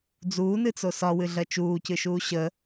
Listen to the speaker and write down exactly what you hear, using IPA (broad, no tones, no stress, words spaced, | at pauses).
d͡zuːnɨt͡so sɒwɨɮɜ t͡ʃuːcɨʃuː ɕə